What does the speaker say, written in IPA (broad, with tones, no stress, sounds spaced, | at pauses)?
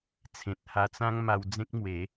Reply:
t͡sʰ ẽ˨ t̚ h a˧ t͡s ã˦ ŋ m a˧ w d͡z ẽ˦ k̚ m w e˨˦